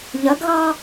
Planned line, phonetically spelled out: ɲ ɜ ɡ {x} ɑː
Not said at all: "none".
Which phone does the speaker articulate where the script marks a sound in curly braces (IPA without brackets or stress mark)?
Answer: ɣ